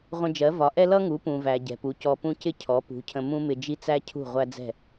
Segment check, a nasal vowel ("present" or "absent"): present